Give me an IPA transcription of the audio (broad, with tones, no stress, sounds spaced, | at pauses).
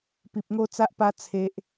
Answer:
p i˨ p̚ ŋ o˦ t͡s a˦ ʔ p a˦ t͡sʰ e˦ ʔ